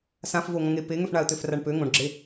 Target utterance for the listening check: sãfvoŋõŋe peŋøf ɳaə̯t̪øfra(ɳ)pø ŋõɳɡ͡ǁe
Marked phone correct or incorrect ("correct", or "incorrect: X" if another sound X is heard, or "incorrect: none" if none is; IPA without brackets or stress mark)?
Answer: correct